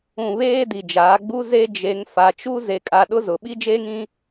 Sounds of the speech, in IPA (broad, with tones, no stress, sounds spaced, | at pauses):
ũ˨ β eː˦ d i˨ d͡ʒ aː˨˦ ɡ͡b u˦ z e˦ d͡ʒ e˨˦ ŋ f a˨ t͡ʃ u˦ z e˨ kʼ a˨ ɗ ʊ˦ z ʊ˨ ɓ i˦ d͡ʒ eː˦ ŋ ĩ˦